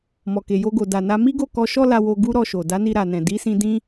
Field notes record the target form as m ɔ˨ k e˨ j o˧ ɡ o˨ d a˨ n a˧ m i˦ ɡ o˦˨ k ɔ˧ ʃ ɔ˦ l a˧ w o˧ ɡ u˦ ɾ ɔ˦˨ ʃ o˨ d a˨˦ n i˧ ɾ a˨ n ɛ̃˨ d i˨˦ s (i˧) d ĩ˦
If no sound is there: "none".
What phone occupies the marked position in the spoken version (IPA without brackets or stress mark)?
ĩ˧